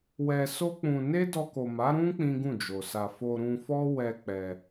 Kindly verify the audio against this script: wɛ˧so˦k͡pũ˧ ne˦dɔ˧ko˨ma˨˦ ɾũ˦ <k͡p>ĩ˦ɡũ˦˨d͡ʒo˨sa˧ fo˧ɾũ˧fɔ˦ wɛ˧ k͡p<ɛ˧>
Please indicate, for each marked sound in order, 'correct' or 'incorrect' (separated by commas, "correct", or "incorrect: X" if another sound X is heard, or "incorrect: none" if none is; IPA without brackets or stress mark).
correct, correct